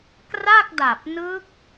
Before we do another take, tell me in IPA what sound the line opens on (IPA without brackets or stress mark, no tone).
k